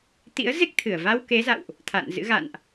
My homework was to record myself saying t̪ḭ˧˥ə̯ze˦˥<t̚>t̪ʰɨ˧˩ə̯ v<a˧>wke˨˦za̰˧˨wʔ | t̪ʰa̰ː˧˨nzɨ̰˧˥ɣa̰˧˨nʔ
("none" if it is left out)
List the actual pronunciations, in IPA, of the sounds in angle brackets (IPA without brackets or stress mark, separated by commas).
k̚, a˧